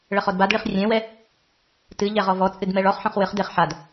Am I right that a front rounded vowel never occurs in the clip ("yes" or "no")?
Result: yes